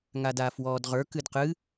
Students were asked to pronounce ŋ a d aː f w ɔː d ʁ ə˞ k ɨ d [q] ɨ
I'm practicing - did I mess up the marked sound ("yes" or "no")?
no